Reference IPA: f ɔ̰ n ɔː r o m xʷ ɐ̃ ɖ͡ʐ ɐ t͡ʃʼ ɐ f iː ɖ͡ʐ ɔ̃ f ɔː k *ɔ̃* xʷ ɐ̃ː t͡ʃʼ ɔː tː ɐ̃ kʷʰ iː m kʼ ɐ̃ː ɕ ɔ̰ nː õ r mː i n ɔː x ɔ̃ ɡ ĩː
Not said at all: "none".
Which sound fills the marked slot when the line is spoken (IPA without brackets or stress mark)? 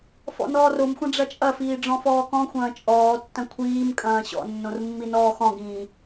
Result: ɔ̃